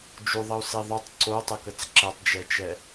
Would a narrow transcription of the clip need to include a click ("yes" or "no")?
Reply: yes